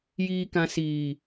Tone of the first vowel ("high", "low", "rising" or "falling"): low